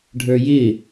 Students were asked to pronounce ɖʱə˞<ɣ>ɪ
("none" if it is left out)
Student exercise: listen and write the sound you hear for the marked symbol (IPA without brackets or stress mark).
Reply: j